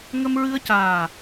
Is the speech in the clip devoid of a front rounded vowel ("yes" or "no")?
yes